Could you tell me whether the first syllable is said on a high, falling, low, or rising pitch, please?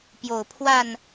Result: low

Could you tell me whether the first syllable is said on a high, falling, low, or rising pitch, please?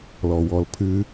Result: low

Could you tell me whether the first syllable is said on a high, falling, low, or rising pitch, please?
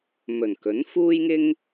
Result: low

